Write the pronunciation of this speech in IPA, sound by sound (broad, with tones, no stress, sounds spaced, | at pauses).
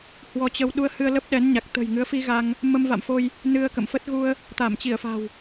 h w ɔ˧ t͡ɕ ə˧ w ɗ u˧ ə̯ h ɨ˧ ə̯ l ə˦˥ p̚ ɗ ɛ˨˦ n ɲ a˨˩ k̚ t̪ ə̤˨˩ j ŋ ɨ˨˦ ə̯ f i˧ ɣ a˧ ŋ | m ə˧ m v a̰˧˨ m f o˧ j | n ɨ˧ ə̯ k ə̰˧˨ m f ə˦˥ t̚ ɣ u˧ ə̯ | t̪ a˧˩ m t͡ɕ i˧˩ ə̯ f a̤˨˩ w